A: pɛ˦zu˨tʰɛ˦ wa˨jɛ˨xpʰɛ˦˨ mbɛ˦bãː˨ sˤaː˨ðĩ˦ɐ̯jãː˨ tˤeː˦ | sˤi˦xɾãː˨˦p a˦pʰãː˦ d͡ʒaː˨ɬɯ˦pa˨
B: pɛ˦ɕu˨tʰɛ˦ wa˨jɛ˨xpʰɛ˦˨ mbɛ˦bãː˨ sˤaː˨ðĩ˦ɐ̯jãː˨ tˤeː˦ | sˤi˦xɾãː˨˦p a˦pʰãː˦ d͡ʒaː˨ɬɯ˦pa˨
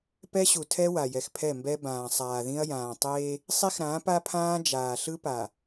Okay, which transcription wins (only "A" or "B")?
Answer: B